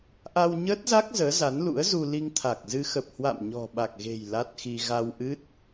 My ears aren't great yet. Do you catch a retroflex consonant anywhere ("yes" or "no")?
no